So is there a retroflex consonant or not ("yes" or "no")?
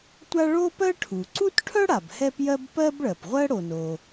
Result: yes